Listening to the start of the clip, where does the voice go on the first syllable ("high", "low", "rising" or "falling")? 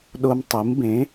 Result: high